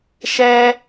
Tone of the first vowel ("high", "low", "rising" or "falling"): high